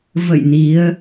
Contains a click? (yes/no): no